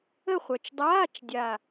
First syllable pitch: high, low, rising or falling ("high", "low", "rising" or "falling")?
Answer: falling